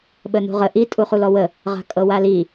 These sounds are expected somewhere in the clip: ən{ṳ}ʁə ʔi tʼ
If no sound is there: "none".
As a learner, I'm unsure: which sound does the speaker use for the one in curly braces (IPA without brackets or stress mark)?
ṳ